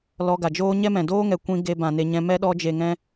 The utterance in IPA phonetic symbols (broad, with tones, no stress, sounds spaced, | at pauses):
l ɔ˧ ɡ a˨ d͡ʒ oː˦ ɲ ɛ˦ m ɛ̃˨ d oː˦ ŋ ɛ˨ kʷ ĩ˧ ɡ e˧ b ã˨ n e˨ ɲ ɛ̃˧ m ɛ˦ ɗ ɔ˧ d͡ʒ e˨ ŋ ɛ̃˧